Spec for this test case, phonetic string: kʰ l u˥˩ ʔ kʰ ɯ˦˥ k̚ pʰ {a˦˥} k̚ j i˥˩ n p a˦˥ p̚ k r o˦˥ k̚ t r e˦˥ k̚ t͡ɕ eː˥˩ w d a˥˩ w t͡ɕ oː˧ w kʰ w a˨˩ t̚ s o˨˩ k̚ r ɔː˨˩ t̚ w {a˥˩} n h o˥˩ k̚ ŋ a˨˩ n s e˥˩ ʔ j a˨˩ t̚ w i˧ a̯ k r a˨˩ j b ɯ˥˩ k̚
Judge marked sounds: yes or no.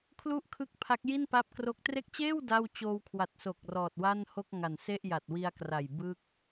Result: yes, yes

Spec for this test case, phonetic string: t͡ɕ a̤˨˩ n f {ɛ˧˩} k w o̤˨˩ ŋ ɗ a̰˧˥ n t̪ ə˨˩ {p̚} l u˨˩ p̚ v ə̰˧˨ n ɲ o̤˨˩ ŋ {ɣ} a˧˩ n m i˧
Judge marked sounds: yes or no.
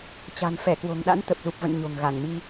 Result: yes, yes, yes

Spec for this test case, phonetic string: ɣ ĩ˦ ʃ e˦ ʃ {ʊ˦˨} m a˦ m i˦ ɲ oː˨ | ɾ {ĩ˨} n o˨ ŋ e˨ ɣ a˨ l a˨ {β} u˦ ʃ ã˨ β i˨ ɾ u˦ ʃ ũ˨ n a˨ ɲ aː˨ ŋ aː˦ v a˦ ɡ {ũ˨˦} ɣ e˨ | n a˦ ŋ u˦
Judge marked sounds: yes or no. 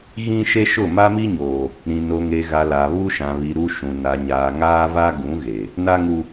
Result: yes, yes, yes, yes

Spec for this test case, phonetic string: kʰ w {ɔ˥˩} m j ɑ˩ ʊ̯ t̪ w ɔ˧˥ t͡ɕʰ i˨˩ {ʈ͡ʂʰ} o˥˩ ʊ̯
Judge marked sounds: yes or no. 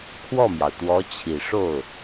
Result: yes, no

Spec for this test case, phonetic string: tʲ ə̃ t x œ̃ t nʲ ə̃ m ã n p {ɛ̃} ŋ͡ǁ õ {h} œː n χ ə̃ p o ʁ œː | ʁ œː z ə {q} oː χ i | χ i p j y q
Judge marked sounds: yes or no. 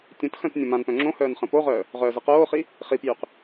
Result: no, yes, yes

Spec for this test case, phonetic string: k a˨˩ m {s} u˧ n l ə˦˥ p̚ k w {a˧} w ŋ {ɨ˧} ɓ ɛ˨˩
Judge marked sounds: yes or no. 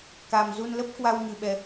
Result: no, yes, no

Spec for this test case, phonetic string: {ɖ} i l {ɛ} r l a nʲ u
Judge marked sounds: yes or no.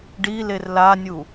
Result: yes, no

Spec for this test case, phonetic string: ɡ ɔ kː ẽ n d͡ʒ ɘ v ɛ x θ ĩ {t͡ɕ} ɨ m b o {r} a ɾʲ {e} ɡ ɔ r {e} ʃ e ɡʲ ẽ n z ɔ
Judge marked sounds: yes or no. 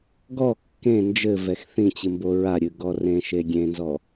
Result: yes, no, no, no

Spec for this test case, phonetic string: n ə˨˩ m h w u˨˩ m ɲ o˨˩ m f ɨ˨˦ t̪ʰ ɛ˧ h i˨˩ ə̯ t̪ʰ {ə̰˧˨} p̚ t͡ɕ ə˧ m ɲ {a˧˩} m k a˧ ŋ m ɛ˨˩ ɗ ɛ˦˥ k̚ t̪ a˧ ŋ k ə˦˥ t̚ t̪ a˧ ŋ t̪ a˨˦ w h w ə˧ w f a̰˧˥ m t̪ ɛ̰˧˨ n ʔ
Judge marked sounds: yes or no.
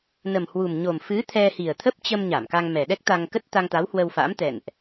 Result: no, yes

